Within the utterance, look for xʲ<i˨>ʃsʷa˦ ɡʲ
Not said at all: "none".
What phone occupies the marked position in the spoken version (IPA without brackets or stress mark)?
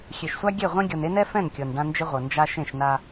e˨